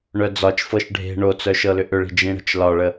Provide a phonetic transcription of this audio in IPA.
ɳ œ d͡z ɒ t͡ʃ f ɤ ʃ ɖʱ e̤ ɳ o t͡s œ ʃ ɤ l ʏ ʔ ʏ ɭ i̤ d͡ʒ ĩ ɽ ə̤ t͡ʃ l ɒ ɭ ə

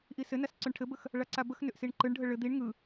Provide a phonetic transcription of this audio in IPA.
ʔ i s ɘ n a s ǀ ʏ ɳ ʈʰ ɘ b ə x | ɭ a ǀ a b ə x n ʏ ʔ s i ɳ ǃ ɯ ɳ ɖʱ ə ɭ ɘ d̪ i ɳ ŋ ɯ

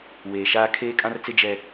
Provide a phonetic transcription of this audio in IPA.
w eː˨ ʃ aː˦ kʰ eː˦ kʼ ã˦ r t͡s ɪ˦ d͡ʒ ɛ˦

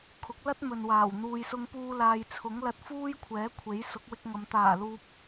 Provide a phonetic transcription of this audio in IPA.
kʰ ʊ˨˥ k̚ l ɐ˥ t̚ m ɵ˨ n w aː˨˩ w n̪ uː˨ j s ʊ˧ ŋ p uː˧ l aː˨ j t͡sʰ ʊ˨˥ ŋ l ɐ˧ t̚ f uː˥ j kʷʰ ɛː˨˥ kʷʰ e˨˥ j s ʊ˨˥ k̚ w ɪ˧ k̚ ŋ ɐ˨˧ m t̪ aː˨˩ l uː˨ p̚

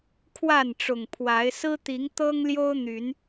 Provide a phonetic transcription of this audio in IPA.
kʰ w a˥˨ n ʈ͡ʂ ʊ˨˩ ŋ pʰ w a˨˦ ɪ̯ s ɹ̩˦ t̪ i˨˦ ŋ t̪ ɤ˦ ŋ l j o˦ ʊ̯ n̪ y˨˦ n

